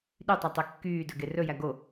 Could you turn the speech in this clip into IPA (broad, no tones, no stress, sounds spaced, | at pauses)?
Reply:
ɗ y tˤ ɑ tˤ e kː yː d ɵ ɡ e r ɵ j æ ɡ o